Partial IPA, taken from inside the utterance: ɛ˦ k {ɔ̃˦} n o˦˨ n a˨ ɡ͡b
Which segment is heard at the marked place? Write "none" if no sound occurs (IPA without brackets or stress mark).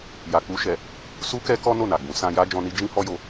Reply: ɔ˦